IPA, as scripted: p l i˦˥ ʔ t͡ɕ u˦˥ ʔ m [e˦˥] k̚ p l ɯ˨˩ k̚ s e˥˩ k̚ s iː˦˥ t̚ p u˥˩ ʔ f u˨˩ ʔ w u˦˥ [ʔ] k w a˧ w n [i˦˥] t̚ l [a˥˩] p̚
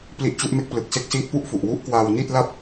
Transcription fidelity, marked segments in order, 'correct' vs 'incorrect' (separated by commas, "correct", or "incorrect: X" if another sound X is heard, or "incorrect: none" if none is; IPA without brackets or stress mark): correct, correct, incorrect: i˥˩, correct